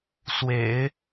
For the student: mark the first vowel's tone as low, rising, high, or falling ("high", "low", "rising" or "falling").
low